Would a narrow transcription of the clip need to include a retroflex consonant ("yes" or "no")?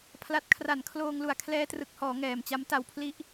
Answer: no